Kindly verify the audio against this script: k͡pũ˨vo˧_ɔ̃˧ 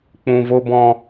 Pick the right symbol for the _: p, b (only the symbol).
b